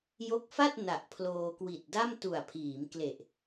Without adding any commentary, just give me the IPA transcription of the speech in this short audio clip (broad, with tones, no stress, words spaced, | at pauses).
jo˦˥k̚fa˥˩t̚ na˨˩ʔpʰloː˧kwi˨˩t̚ da˥˩mtu˨˩a̯pʰiː˩˦mkle˨˩ʔ